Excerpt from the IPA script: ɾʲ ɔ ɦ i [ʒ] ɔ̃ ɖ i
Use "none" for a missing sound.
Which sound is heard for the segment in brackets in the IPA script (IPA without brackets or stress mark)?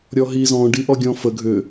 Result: z